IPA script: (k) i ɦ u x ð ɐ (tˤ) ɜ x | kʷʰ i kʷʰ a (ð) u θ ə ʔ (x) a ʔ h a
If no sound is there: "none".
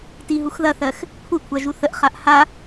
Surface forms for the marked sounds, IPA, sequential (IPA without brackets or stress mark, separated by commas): t, θ, ʒ, χ